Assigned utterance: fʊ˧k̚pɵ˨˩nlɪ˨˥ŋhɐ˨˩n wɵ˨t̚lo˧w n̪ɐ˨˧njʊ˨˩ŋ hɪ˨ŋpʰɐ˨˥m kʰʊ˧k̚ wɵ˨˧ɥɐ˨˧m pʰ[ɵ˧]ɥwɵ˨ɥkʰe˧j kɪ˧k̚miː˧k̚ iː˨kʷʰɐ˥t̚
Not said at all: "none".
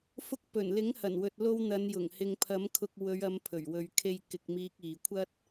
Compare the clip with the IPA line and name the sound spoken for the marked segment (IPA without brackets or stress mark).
ɵ˨˩